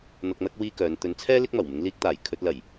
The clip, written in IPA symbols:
n̪ ɐ˨ k̚ n̪ ɐ˧ k̚ w iː˥ k œː˨˧ n t̪ ɵ˨˧ n t͡sʰ ɛː˥ l ɪ˥ k̚ m ɐ˨˩ w m ɪ˨˧ ŋ l iː˧ k̚ t̪ aː˨˩ j kʰ ɵ˧ t̚ l ɐ˨˩ j

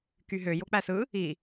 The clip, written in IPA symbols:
k y ɦ ø j o k͡p æ s ɯ | i

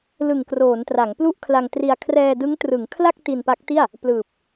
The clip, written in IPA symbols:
l ɯ˨˩ ŋ k r oː˩˦ n t r a˩˦ ŋ p l u˥˩ ʔ kʰ l a˧ ŋ t r i˧ a̯ kʰ r ɛː˧ d ɯ˦˥ ŋ t r ɯ˩˦ ŋ kʰ l a˥˩ k̚ t i˧ n p a˦˥ k̚ t i˥˩ a̯ | p l ɯː˨˩ p̚

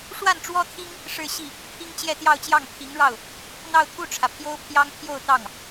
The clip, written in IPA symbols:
ʂ w a˥˩ n ʈ͡ʂ w ɔ˥ t̪ʰ i˥ ŋ | ʂ ɻ̩˥˧ ɕ i˥˩ | pʰ i˥ ŋ t͡ɕ j ɛ˥˧ t̪ j ɑ˥˧ ʊ̯ t͡ɕ j ɑ˥˩ ŋ pʰ i˧˥ ŋ ɻ ɑ˥˩ ʊ̯ | n̪ ɑ˥˧ ʊ̯ t̪ʰ u˥˩ ʈ͡ʂʰ ä˩ pʰ j o˥ ʊ̯ pʰ j ɑ˥ ŋ pʰ j o˥˧ ʊ̯ t̪ ɑ˥˩ ŋ

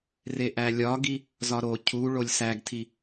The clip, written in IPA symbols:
r e ʔ æ lʲ ɒ ɡ i | z ɒ ɾ o cʰ u ɭ o lʲ s æ ɡ tʰ i

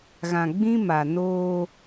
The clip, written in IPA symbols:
ɣ ã˨ ɡ͡b ĩ˦ m a˨ n oː˦

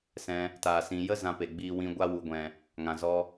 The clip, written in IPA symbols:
s ɛ̃˧ | t aː˨ s ĩ˨ j ə˦ z ã˧ p e˨ ɡ͡b iː˧ w ĩ˧ ɡʷ a˧ w u˨ ɡʷ ɛ̃˨ | ŋ ã˨ z ɔ˧

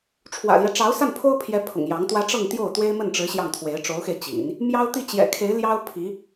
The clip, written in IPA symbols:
ʈ͡ʂʰ w ä̰˨˩ l j ɛ˦ ʈ͡ʂ ɑ˧˥ ʊ̯ s a˥˩ n pʰ o˥ ʊ̯ pʰ j ɛ˧˥ pʰ ʊ̰˨˩ ŋ j ɑ˧˥ ŋ t̪ w ä˥ ʈ͡ʂ ɤ˥˧ ŋ t̪ j o˥˩ ʊ̯ t̪ w e˥ ɪ̯ m ə˥˩ n ʈ͡ʂ ɻ̩˧˥ ɕ j ɑ˥˩ ŋ t̪ʰ w e˧˥ ɪ̯ ʈ͡ʂ o˧˥ ʊ̯ x e˧ ɪ̯ t͡ɕ ḭ˨˩˦ n | m j ɑ˥ ʊ̯ t̪ i˥˩ t͡ɕ j ɛ̰˨˩ kʰ e˧˥ ɪ̯ l j ɑ˥ ʊ̯ pʰ i˧˥

